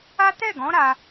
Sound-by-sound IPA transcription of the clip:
a˦ tɛ˦˨ɡɔ̃˨˦ ɾa˧

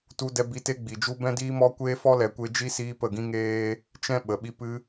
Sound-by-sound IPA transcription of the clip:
tu˧dɛ˧bi˧ te˦ɡ͡bi˨d͡ʒu˦ bɛ̃˦diː˦mɔ˦kʷeː˦ fɔ˦lɛ˨kʷe˧d͡ʒi˦ siː˦pə˦˨ ɡĩ˦ŋeː˦ | t͡ʃɛ̃˦ ɓə˨ɓi˦ pɨ˧

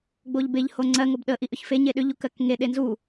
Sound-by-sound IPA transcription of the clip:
ɡ͡boʎbeʎ hoŋ͡ǀɜ ŋobɗə ʔiʔʏçfe ɲeɗʏʎ ukɜkŋe ɗenzu

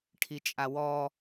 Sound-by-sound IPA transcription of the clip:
ʈʰit͡ʃʼawɔ

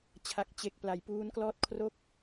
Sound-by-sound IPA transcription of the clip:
t͡ɕʰa˨˩k̚t͡ɕe˨˩k̚ pla˩˦jpuː˦˥nklɔː˥˩t̚ kʰro˦˥k̚

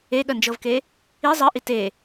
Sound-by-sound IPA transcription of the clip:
eɠɜnd͡ʒɤvke | i zˤɜʔi te

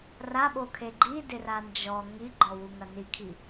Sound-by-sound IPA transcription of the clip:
raɓokʰe ɡ͡ǃidɪra nd͡ʒɔ ŋiɡ͡ǃɔwuŋɐ nikʰi

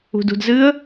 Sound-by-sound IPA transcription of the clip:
ṳdṳdzɨə̯

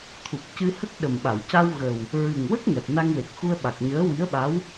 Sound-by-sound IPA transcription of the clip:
t̪ʰu˨˩k̚cɨ˧ hə˦˥k̚ɗə˨˩mɓa˨˩˨w ca˧wɣə˨˩w | ɹɨ˨˩ŋwə˦˥k̚ ŋɛ˨˩p̚ na˧ŋwe˨˩k̚xu˧ə̯ ɓa˨˩k̚ɲəː˧˥wi˧˥ə̯ɓa˧˥w

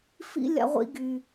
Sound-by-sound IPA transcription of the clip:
fḭ˨ lʲa̰˨ʁʷḭ˨ɡy˩

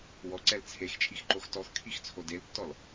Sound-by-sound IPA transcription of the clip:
wɔǀɛl t͡sʰext͡ʃʼixǃox tɔxkʰixt͡sʰo deltːɔl

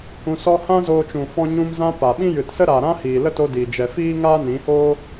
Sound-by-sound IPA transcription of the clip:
hũ˧sɔ˦ hã˦zoː˧t͡ʃũ˨ fɔ̃˧ ɲũ˧mzã˧ pa˨ɓĩ˦ jɨ˨tsə˦ɾaː˨ɾã˦ hiː˨lə˦to˧ diː˨ d͡ʒɛ˨fiː˦ ŋaː˦nĩ˨˦hoː˦

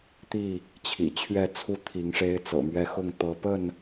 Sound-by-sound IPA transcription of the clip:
t̪i˥˨ | t͡ɕʰḭ˨˩t͡ɕʰɥɛ˥˨t͡sʰu˥˨ t̪ʰi˨˦ŋʂe˦ɪ̯ t͡sɤ̰˨˩mɥɛ˦xʊ˥˨ŋ t̪ɤ˨˦pə˥˨n

